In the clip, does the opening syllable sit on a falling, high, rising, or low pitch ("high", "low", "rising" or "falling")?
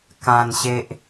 low